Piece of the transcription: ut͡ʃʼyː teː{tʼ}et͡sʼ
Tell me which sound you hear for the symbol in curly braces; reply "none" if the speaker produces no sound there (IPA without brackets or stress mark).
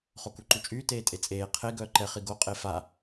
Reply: tʼ